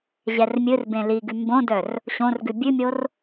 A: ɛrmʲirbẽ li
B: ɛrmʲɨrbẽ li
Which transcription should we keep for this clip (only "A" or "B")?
B